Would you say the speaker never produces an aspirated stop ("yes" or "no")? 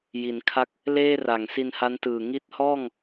no